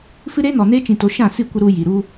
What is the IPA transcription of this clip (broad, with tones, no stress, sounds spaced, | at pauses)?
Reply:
f ɨ˦ ɾ eː˦ n ɔ˨ n eː˦ t͡ʃ ĩ˨ t o˨ ʃ ã˦˨ s i˦˨ kʷ ə˧ ɾ u˧ j i˨ ɾ u˦